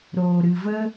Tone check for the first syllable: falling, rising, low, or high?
low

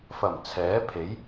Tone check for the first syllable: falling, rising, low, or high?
low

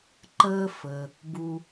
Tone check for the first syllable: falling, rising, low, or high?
high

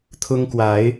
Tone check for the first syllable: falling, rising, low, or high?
high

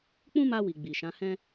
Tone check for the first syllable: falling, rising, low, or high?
high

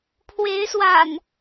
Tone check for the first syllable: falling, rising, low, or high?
rising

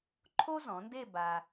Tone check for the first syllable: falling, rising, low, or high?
high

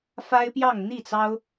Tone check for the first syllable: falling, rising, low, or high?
high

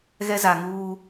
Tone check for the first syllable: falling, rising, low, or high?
high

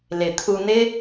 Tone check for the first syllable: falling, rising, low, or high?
low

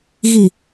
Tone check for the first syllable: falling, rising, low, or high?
low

